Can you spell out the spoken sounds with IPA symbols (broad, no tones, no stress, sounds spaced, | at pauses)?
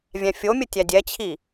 vʲ æ̃ fʲ o mʲ ə tʲ æ dʲ ɛ t͡ɕʰ i